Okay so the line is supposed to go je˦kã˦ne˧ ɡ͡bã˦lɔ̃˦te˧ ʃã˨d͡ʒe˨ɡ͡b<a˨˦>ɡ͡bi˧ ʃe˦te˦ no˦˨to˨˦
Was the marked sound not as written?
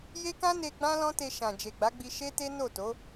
no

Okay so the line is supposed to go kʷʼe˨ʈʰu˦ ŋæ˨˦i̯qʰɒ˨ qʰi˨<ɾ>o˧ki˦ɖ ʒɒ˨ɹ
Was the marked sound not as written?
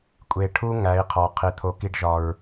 yes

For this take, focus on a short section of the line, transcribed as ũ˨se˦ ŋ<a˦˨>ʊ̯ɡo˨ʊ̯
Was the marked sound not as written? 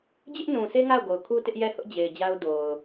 no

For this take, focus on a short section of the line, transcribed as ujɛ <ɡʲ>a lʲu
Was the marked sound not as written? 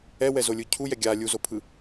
no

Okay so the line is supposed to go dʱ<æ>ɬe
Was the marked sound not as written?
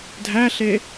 no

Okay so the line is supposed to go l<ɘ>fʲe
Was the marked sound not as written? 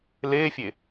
yes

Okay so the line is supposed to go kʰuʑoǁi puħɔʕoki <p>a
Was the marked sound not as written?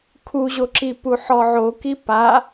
no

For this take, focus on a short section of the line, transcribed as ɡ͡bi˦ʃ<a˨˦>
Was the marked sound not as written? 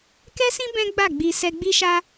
yes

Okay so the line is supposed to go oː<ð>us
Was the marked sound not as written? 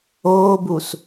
yes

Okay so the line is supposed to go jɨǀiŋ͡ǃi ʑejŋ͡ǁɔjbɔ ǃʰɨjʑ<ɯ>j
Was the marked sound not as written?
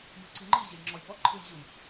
no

